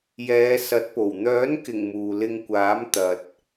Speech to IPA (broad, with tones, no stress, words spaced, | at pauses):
jɛː˨˧sɐ˨˥t̚po˨˩w n̪œː˨˥nkɪ˨˩ŋ muː˨lɪ˧ŋkʷaː˨˥m t̪ɐ˨t̚